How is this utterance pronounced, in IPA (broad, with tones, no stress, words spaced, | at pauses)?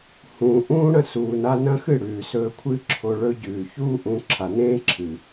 hũː˨ ʔũː˦ɽɐ̃˦ suː˨na˧nɐ̃˦xɨ˦˨ ɽʉː˨sɵː˧kʷʰɨ˦ǁʰo˧ ɭɵ˧ɟʉː˨çuː˦ ʔũ˧ ǁʰa˨nẽː˦ǁʰɨ˨